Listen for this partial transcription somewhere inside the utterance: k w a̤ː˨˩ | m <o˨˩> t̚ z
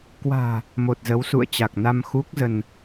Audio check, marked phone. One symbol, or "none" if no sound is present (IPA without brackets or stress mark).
o˨˩